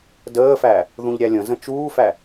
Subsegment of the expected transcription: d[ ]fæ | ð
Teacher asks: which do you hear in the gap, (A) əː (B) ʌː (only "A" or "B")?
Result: A